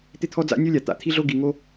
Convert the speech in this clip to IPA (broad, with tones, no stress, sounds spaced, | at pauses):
t̪ ɪ˦ t̪ʰ ɔ˦ d͡z a̰˦ nʲ o˦ lʲ a˨ t̪ a̰˨˦ t̪ʰ i˦ ɮ o˦ ɡ i˧ ŋ o˦